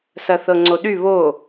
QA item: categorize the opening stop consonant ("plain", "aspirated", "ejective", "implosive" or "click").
click